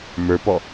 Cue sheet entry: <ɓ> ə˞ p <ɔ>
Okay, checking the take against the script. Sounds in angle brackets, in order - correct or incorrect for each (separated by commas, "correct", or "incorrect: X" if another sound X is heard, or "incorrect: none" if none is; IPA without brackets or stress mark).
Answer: incorrect: m, correct